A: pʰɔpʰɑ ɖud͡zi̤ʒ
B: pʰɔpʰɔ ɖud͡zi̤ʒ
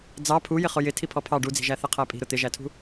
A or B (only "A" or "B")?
A